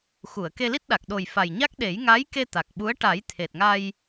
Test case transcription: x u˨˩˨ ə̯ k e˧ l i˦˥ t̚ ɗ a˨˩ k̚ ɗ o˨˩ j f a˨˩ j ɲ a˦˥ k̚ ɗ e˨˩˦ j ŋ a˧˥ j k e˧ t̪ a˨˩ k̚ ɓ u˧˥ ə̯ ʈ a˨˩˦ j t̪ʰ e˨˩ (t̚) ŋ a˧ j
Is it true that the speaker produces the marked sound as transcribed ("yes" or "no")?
yes